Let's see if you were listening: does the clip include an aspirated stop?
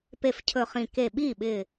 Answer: yes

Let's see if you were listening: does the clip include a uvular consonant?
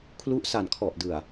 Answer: no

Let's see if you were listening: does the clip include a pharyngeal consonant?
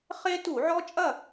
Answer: yes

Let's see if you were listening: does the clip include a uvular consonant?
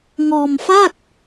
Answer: no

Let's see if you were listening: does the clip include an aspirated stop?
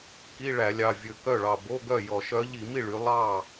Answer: no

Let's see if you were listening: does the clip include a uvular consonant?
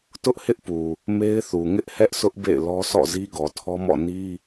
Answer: no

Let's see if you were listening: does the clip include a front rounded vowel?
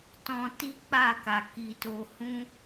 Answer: no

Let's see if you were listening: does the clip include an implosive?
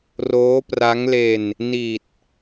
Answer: no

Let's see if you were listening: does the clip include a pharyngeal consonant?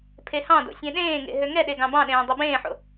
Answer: yes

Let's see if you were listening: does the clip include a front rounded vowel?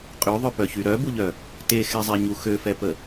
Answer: yes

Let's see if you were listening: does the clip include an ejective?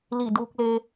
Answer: no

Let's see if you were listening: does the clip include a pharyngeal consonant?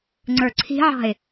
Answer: yes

